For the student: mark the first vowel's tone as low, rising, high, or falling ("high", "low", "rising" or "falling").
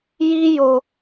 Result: high